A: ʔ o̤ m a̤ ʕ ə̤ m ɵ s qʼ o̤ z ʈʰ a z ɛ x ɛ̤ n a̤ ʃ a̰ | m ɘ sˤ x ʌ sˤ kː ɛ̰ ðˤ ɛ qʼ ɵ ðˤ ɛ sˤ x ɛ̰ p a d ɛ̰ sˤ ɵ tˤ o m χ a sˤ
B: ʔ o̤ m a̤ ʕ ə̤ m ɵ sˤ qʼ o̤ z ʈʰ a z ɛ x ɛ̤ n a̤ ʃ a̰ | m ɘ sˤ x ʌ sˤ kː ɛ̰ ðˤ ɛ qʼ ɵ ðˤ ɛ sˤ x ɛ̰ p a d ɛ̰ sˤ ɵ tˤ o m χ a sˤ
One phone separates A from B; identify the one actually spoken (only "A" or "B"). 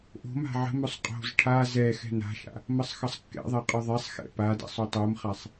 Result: B